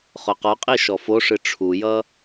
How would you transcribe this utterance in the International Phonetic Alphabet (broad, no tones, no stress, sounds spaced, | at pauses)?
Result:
χ ʊ q ɔ qʼ i ʃ ɔ f o ʂ ɨ ʈ͡ʂʰ u j ʌ